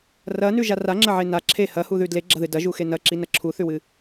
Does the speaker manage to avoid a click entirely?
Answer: no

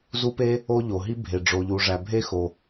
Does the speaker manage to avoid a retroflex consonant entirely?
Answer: no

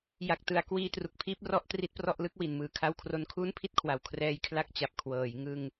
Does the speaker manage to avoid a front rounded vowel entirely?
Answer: yes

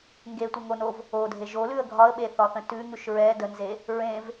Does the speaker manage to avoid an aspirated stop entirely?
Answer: yes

